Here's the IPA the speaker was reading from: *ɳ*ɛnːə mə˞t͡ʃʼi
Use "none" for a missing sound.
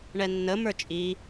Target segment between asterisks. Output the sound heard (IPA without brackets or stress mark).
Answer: ɳ